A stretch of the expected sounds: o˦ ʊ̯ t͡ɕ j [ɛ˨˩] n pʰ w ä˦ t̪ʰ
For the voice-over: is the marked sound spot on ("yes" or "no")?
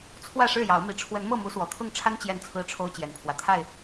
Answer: yes